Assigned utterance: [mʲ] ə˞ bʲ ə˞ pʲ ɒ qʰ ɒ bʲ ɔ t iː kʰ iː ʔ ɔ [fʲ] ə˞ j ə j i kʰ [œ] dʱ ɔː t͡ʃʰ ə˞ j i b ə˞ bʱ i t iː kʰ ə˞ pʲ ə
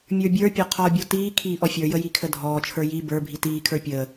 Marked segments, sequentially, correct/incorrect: correct, correct, incorrect

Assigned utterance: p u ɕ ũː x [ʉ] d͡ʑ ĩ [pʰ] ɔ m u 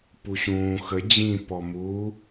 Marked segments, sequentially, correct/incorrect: incorrect, incorrect

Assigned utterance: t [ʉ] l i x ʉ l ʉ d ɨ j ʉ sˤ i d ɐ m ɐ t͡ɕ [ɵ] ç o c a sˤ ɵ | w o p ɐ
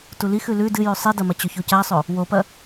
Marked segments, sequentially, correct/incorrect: incorrect, correct

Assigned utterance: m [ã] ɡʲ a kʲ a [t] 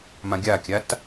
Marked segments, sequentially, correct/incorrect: correct, correct

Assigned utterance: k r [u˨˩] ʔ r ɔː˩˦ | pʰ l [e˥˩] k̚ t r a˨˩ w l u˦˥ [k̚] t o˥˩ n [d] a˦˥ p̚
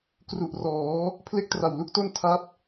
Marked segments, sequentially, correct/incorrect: correct, correct, correct, incorrect

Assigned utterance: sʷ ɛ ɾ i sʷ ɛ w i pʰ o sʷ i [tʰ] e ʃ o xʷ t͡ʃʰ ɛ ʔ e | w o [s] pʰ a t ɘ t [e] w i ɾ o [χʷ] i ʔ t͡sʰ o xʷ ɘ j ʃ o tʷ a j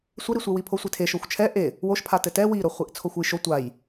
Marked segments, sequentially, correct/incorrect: correct, incorrect, incorrect, correct

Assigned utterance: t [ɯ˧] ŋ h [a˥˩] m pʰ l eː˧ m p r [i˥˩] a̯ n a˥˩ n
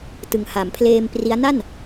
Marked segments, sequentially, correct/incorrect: incorrect, incorrect, incorrect

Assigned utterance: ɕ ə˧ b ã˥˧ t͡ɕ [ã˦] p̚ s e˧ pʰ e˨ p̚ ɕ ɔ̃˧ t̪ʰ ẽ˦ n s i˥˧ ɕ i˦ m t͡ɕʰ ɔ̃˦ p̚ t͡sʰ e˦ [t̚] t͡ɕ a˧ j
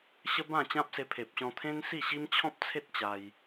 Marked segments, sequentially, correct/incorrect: correct, correct

